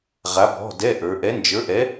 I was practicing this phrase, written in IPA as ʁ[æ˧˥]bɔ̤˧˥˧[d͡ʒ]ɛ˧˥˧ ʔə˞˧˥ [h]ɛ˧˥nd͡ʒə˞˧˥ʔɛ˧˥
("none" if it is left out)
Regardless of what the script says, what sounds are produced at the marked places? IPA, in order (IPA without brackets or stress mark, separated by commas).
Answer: a˧˥, d, ʔ